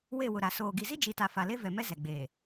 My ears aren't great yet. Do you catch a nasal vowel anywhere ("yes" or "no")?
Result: no